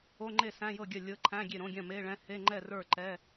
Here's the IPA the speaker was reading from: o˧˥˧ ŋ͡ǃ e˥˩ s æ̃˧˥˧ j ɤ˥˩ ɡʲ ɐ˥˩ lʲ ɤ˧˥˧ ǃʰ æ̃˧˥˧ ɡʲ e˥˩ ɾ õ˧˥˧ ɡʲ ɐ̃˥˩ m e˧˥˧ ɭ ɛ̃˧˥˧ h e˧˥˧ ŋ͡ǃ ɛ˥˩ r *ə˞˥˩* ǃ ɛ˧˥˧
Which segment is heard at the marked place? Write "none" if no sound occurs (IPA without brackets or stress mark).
ə˞˥˩